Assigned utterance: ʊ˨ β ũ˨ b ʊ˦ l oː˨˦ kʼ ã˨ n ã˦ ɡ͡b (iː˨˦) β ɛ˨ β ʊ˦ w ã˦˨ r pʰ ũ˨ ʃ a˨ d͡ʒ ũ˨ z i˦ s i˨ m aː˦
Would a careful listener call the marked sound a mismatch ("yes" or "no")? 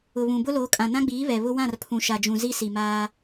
no